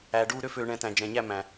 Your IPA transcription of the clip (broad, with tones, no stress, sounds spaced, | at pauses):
æː˨ ɖ uː˥˧ ɾ ø˥˧ f øː˨ ɳ ɛ̃˨ t æ̃˨ d͡ʒ ɛ̃˨ ɲ æ˥˧ m æ̃˨